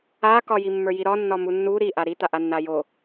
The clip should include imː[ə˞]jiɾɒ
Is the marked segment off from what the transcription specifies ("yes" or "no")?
no